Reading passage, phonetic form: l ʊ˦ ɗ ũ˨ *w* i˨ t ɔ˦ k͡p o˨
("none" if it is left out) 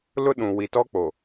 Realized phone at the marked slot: w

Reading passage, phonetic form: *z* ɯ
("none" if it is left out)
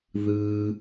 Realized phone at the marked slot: ð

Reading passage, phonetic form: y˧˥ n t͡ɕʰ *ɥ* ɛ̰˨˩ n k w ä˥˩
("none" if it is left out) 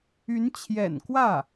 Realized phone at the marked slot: j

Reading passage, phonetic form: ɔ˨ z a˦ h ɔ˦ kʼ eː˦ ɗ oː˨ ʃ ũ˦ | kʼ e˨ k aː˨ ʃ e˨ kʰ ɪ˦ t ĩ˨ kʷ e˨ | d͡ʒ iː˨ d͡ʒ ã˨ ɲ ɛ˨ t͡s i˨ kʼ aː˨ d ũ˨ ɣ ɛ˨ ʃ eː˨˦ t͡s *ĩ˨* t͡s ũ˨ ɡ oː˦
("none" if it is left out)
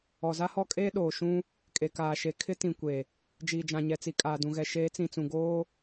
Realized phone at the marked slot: ĩ˨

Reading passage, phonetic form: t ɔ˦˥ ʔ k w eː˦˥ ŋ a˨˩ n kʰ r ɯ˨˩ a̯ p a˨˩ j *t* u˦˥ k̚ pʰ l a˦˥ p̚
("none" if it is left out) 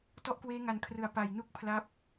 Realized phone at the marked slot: n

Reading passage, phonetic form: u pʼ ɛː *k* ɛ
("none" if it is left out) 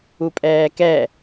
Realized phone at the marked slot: k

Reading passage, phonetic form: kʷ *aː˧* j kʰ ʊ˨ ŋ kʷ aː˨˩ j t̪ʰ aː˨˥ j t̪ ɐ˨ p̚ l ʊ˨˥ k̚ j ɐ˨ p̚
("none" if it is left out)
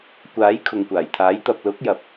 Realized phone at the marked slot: aː˨˥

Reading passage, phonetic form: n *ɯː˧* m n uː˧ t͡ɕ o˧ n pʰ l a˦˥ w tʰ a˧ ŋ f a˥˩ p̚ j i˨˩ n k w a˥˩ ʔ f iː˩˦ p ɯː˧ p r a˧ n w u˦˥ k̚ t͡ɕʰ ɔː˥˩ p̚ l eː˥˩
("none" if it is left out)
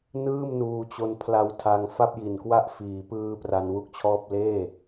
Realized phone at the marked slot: ɯː˥˩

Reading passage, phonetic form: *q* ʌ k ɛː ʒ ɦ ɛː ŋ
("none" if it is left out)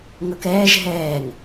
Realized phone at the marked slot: ŋ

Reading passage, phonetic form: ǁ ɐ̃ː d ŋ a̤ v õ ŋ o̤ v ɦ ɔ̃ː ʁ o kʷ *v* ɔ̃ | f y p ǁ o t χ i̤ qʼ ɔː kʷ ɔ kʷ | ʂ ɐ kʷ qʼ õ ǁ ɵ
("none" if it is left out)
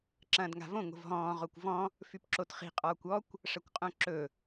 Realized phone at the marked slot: v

